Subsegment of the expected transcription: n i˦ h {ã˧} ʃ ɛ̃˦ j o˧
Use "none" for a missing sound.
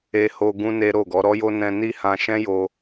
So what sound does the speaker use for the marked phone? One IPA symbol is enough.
ã˧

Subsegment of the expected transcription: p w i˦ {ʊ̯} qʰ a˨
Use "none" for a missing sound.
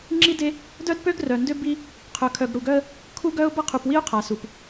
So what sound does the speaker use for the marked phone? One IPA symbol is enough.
ʊ̯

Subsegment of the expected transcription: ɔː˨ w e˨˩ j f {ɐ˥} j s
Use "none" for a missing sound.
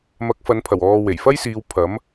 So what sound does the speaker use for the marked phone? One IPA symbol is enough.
ɐ˥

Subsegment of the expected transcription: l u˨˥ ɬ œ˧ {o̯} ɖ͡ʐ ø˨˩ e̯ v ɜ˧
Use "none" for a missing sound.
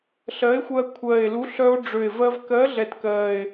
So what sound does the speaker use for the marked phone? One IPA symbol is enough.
o̯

